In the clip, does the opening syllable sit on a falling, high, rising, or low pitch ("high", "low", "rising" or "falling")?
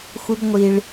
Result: high